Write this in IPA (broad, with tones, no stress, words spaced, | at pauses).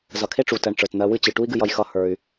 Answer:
zʌ˨kʰe˦ʈ͡ʂu˨tɜ˨ɳ ʈ͡ʂə˞˨tn̪ɜ˧wɨ˦t͡ɕɨ˨ ʈu˦i̯ɡɨ˧jʌ˧j xʌ˦ hə˞˧y̯